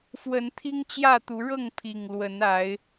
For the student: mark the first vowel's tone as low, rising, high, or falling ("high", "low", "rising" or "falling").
rising